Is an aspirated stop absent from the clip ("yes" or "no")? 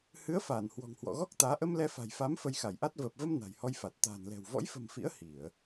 yes